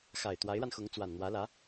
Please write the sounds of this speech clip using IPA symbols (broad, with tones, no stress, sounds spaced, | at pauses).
x a˨˩ ɪ̯ t̪ w a˧˥ ɪ̯ ɻ a˧ n x ʊ˧˥ ŋ t͡s w a˨˩ n n̪ w ä˧˥ l ä˧˥